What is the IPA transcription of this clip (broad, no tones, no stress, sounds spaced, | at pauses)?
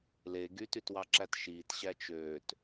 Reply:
l e ɡ y t y t w ɑ ǁ æ t ʃ iː t ɕ æ t͡ʃ øː t